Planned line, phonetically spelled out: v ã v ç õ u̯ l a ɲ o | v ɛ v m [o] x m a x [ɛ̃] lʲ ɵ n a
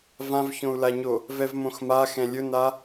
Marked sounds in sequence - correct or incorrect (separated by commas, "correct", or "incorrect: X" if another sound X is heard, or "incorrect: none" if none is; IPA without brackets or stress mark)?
incorrect: õ, correct